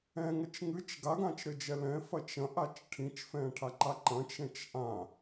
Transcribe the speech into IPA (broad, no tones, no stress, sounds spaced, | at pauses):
ɛ̃ ŋ ɐ t͡ʃ ŋ ɨ t͡ʃ ɡ a ɡ ã t͡ʃ ɾ ɘ d͡ʒ ɛ l ɛ̃ f ɐ t͡ʃ ɐ̃ ʔ a t͡ʃ ʈʰ ĩ t͡ʃ f ɛ̃ ʈʰ a ǃ a ǃ ɐ̃ t͡ʃ ɛ̃ t͡ʃ ʔ ã